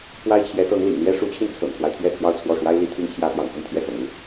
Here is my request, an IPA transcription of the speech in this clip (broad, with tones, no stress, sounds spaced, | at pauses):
p w a˥ ɪ̯ t͡ɕʰ j ɛ˧˥ t̪ ɤ˧˥ ŋ l ḭ˨˩ ŋ l ɥ ɛ˥ ʂ u˧˥ t͡ɕʰ i˧ n t͡sʰ ɤ̰˨˩ ŋ t̪ʰ w a˦ ɪ̯ t̪ʰ ɥ ɛ˥˧ t̪ʰ j ɑ˥˧ ʊ̯ t͡sʰ w ɔ˥˩ ʂ w a˥ ɪ̯ l i˥ t̪ʰ i˥ ŋ t͡ɕʰ j ä˥ p j ɑ̰˨˩ ŋ f ə˥˧ n t̪ʰ j ɛ˥˩ x ɤ̰˨˩ ŋ u˥